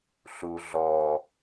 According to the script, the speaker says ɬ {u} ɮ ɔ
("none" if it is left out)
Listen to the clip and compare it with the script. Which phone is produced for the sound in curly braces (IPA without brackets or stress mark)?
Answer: u